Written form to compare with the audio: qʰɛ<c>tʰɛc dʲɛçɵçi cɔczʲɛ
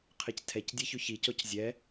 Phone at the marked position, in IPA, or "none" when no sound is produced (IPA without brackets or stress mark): c